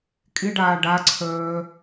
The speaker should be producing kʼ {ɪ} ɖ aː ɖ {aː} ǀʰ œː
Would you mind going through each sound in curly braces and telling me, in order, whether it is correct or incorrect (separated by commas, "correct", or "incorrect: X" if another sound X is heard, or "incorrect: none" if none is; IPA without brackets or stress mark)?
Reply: correct, incorrect: a